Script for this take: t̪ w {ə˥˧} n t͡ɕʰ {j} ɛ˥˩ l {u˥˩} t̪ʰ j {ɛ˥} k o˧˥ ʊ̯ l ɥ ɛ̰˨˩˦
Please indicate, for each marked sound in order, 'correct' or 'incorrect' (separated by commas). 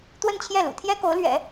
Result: correct, correct, incorrect, correct